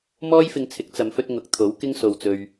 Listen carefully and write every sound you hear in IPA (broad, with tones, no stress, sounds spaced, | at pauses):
m ɔː˥ j f ɪ˧ ŋ t͡sʰ ɪ˨˥ k̚ t͡s ɐ˨˧ m f ɵ˧ t̚ ŋ ʊ˨˥ k̚ t̪ʰ o˨˥ w k ɪ˥ ŋ s o˧ w t͡s ɵ˧ ɥ